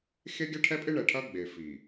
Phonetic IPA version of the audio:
x e˦ ɡʲ ɐ˦ ʈʰ ɛ˦ pʼ ɪ˦ ɳ ɛ˨ ʈʰ ɐ˦ ɡ͡b e˨ f i˨

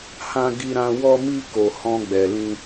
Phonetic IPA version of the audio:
h ã˧ ɡ i˧ ɾ ã˧ w ɔ˧ m i˧ k o˨ h ɔ̃˧ ɡ͡b ɛ˨ l ĩ˧

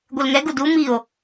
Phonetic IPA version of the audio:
ɡʷ e l ŋ ɛ ɡ u d u m i o̯

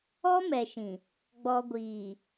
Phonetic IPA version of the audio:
ɔ˦ m ɛ˨ ʃ ĩ˨ | ɡ͡b ɔ˨ ɡʷ iː˨

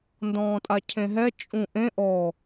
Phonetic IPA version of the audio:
n d ɔ̃ː tʼ a cʰ ẽ ɦ ɛ t͡ʃʼ ũ ʔ ẽ ʔ ɔ

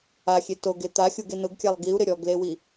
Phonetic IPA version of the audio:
a xʲ e t o ɡ e t̪ a xʲ u ɡ e n ʊ ɡ kʲ a lˠ ɡ i u̯ ɾ ɪ ɾʲ ɔ ɡ l e w i

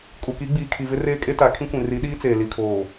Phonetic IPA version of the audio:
kʼ u˨ k i˨˦ ɡ͡b iː˨ kʰ i˨ v ɪ˦ r eː˦ kʼ e˦ t a˨˦ kʰ ĩ˦ kʷ ĩ˨ r i˨˦ ɗ iː˦ t͡s eː˨ l i˨ kʰ oː˨

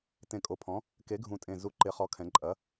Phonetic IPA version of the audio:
t ẽ˨˩ kʼ o˨˩ pʰ ɔ̃˩˥ | k e˩˥ ɡʱ ũ˨˩ tʼ ẽ˨˩ z u˨˩ ǃ ɪ˩˧ χ ɔ˩˥ kʰ ɛ̃˩˧ ǃʼ ɐ˩˥

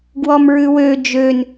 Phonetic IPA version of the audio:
ɡ w ɔ m ɹ ʉ w ø d͡ʒ ø n

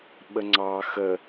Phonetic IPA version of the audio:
ɓ ə ŋ͡ǀ ɑ x ə

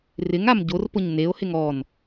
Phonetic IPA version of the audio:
r ɪ ŋ a m ɟ o r p ʊ ɲ n e o̯ h ɪ ŋ ɔ n

